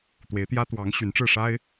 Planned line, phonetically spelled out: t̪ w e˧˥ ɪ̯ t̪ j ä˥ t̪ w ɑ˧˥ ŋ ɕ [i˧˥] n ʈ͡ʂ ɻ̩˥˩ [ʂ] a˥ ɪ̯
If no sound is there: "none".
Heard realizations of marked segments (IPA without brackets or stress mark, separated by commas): y˧˥, ʂ